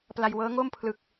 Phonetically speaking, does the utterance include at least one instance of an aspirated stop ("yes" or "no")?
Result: yes